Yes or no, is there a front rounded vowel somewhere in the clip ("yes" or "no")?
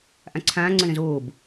no